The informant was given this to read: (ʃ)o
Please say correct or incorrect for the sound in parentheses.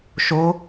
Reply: correct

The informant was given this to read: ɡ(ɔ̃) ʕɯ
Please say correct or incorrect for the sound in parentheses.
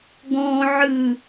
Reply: correct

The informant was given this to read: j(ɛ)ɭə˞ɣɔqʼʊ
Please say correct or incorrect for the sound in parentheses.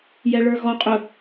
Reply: correct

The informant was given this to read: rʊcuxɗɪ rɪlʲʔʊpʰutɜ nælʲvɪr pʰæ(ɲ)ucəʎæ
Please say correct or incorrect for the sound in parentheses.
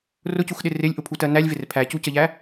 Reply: incorrect: c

